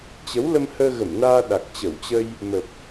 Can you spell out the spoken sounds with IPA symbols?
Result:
t͡ɕə˨˦wlə˧m həː˧ɣə˧˩mnaː˧ ɗa˨˩k̚t͡ɕə˧˩wt͡ɕə˧j | mə˨˩p̚

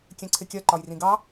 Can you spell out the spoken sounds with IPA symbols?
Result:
kʲɛ̃ǀʰɪkʲɜ ǃɒjrĩɡɑ

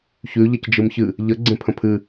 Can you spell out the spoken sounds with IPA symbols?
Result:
çʉ ʎʌcd͡ʒɯmçɨ | ʎə ɡ͡ǀẽpʰə̃pʰɨ

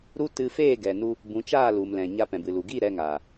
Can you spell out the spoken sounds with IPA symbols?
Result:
ɾu˦ tɨ˧ feː˦˨ɡɛ˨nu˧ | bũ˨˦t͡ʃaː˦˨lu˨mlɛ̃˨ ɲa˧pɛ̃˨bɨ˨lu˨ ɡi˦˨ ɾɛ˧ŋaː˨

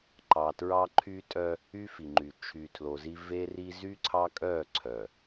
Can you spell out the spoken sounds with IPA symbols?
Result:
ǃɑ˨tɹɑ˦ ǃʰy˦tʼœ˦ | y˦fi˨ŋ͡ǃy˨ t͡ʃʰy˨tʰlo˨zi˦ ve˦ri˦ zy˦ǀʰɑ˦kʼœ˦˨ ǀʰœ˨

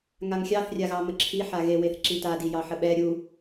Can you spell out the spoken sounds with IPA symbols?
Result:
ŋaŋxʲɑθ rʲaɣɑməǁʰi ħaɣe weθǁita dijɑħəɓɛ ɾʲu

